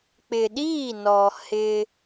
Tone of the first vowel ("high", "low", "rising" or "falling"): low